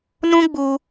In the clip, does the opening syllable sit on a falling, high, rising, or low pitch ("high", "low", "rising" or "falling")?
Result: high